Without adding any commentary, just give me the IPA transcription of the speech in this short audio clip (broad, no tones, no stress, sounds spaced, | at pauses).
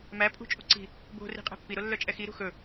m æ pʼ ṳ t͡ʃʼ u ǀ i̤ | b o̤ r i̤ qʼ ɛ̤ pː i ɾ o lː œ t͡ʃʼ ɛ x i ɾ ṳ x ɵ